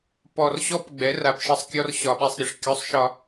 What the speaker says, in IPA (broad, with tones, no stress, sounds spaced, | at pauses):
p ɔ˨ r ɕ ɔ˦ p ɡ͡b ɛ˨˦ r a˨ p ʃ ɘ˦ sˤ kʲ ɔ˦ r ɕ ɒ˨ ɓ ɛ˦ sˤ ɾʲ ɘ˨ ʂ kʲ ɔ˦˨ sˤ ʃ ɒ˦